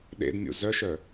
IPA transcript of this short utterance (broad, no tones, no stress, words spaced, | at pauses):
ɗḛdmʲṵ zœʃœ